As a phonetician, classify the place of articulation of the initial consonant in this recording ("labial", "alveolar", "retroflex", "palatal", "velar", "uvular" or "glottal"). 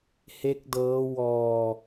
glottal